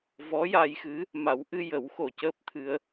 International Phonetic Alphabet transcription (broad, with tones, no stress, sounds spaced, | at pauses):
v ɔ˧˥ j a˧ j x ɨ˧˥ | m a˨˩˦ w ʔ ɨ˧ j ə˨˩˦ w x o˨˩ c əː˦˥ p̚ t̪ʰ ɨ˧ ə̯